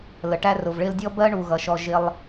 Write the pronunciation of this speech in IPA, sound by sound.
l ə˩ ʈ æ˦ r ʊ˩ v ɭ ɪ˦ l dʲ ɔ˥ b ɜ˥ ɳ u˩ ɣ ʌ˩ ʃ ɔ˨ ʒ ɪ˨ lˠ

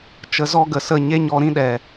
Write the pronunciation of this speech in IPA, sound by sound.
t͡ʃ ə˧ z ɔ˦ ɡ ə˨ s ə˦˨ ɲ e˦ ɲ ɔ˧ ɾ ĩ˦ ɗ ɛ˨

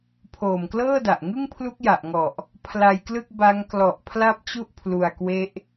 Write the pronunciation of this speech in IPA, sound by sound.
pʰ oː˨˩ m k l ɤː˥˩ d a˨˩ ʔ ŋ ɯ˥˩ ŋ pʰ l u˦˥ k̚ j a˨˩ ʔ ŋ ɔ˨˩ ʔ | pʰ l a˧ j k l ɯ˥˩ k̚ b a˦˥ ŋ k l ɔ˨˩ ʔ pʰ l a˦˥ p̚ t͡ɕ u˥˩ ʔ pʰ l u˧ a̯ k w e˦˥ ʔ

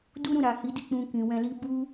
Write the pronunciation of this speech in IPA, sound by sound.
d u˦ ɾ ũ˦˨ ɾ a˨ h i˨˦ d i˦˨ k͡p ũ˧ k ĩ˨ w ɛ̃˧ l i˦ b u˦

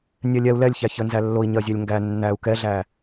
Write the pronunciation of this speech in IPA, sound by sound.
nʲ ɛ lʲ ɛ u̯ l ɛ lʲ ç æ ç ə n z æ lː o i̯ ɲ ɜ zʲ ɛ lʲ ŋ ɡ æ nː æ u̯ k ɛ ɮ æ

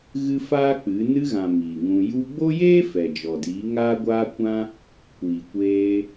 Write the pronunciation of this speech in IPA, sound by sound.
ɣ ɨ˦ f aː˦ k͡p ɨ˨˦ n ɨ˧ ɣ ã˨ m iː˨ ŋ ũ˧ j u˧ ɡ͡b o˦ j eː˦ f ɛ˨ d͡ʒ ɔ˨ d iː˨˦ ŋ aː˦ ɡʷ aː˦ kʷ ã˦ | kʷ iː˨ kʷ eː˧

